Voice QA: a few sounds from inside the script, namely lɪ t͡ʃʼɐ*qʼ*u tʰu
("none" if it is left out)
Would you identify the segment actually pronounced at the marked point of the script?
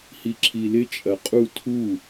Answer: qʼ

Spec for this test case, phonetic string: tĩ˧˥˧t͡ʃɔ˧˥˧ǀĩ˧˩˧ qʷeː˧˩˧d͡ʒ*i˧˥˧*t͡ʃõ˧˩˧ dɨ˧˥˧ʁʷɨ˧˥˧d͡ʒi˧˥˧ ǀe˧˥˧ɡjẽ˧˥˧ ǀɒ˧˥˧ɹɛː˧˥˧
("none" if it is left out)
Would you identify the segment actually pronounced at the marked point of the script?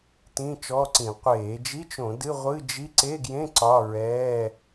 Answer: i˧˥˧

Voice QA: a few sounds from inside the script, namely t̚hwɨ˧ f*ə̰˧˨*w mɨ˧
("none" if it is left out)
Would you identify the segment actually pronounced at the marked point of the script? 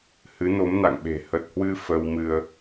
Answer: ə˧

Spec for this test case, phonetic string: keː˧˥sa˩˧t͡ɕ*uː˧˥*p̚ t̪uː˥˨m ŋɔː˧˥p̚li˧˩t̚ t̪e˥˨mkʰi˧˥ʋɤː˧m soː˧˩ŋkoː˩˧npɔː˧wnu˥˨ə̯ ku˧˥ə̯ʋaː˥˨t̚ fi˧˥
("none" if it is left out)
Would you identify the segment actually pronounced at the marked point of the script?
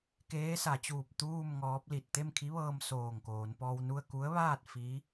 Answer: uː˧˩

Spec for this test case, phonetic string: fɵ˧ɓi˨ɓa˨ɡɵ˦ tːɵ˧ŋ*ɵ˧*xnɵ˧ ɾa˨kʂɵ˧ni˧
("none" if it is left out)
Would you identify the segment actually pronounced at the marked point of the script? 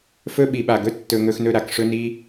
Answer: ɵ˧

